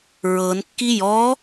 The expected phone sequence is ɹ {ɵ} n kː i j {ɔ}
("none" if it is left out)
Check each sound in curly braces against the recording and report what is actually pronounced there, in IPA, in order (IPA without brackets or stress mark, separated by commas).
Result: ɤ, ɔ